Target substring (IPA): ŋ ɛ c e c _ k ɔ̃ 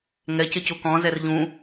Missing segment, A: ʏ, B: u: B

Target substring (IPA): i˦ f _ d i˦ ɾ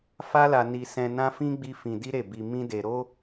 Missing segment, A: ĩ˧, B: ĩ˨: A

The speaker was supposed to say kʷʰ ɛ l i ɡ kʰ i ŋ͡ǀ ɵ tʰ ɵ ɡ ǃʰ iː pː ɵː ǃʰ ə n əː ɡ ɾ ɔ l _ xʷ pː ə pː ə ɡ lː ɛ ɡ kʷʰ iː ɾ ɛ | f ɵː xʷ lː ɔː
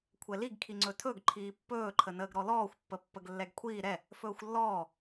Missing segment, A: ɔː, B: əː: A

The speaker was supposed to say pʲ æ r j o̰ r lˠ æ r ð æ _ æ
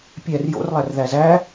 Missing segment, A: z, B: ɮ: A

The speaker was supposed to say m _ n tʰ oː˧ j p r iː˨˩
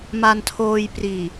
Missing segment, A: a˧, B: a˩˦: A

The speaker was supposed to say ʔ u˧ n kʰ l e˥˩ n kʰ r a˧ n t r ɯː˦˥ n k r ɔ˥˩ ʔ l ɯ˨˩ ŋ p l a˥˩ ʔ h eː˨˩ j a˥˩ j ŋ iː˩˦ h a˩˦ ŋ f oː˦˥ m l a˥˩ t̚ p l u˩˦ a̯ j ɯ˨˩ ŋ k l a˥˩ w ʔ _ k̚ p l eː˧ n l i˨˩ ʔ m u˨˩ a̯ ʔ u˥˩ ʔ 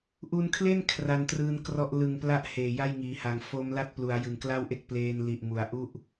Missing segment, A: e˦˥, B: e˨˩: A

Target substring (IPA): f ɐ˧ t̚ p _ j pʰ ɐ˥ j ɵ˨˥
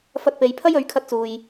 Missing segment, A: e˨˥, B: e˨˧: B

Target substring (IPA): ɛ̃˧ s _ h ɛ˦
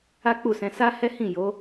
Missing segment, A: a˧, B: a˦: B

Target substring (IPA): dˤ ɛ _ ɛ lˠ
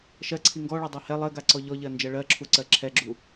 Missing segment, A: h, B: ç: A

